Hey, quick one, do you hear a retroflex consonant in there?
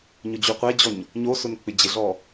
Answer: no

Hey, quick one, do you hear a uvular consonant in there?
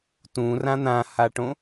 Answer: no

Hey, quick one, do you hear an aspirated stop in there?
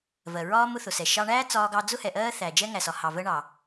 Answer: no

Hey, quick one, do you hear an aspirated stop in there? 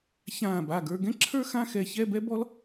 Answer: yes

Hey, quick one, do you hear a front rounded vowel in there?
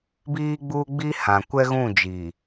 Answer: no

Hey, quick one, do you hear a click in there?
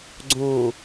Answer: yes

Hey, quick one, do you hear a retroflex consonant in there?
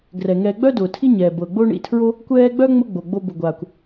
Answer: yes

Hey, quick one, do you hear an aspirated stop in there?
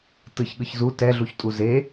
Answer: no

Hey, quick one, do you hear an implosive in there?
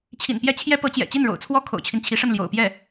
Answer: no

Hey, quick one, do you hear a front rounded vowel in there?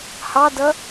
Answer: no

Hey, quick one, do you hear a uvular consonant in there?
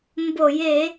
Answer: no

